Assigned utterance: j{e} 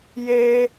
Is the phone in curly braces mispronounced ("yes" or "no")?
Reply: no